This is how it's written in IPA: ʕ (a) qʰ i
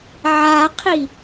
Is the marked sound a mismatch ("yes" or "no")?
no